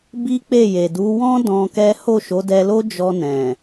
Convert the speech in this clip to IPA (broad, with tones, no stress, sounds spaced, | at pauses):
b i˦ k͡p e˦˨ j e˨ d u˨˦ w ɔ̃˦ d ɔ̃˧ k ɛ˦ h o˦˨ ʃ o˨˦ d ɛ˧ l o˦ d͡ʒ ɔ˧ n ɛ̃˨